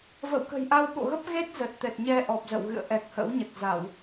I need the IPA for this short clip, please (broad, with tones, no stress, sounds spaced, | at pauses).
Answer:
v ə̰˧˨ w k ə̤˨˩ j ʔ a˧ w ɓ o̰˧˨ ɣ ə˦˥ p̚ ɣ e˦˥ t̚ z ə˨˩ t̚ t̪ ɛ˨˩ t̚ ɲ ɛ˧ ʔ ɔ˨˩ p̚ z ə̰˧˨ w ɣ ɨ̰˧˨ ə̯ ʔ ɛ˨˩ k̚ h ə̰˧˥ w ɲ ə˨˩ t̚ z a˧˩˨ w